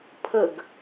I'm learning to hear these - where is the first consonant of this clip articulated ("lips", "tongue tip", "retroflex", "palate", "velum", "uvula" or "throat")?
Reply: lips